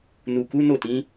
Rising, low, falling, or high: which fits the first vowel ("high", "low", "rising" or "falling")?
low